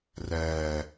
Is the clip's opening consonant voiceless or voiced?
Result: voiced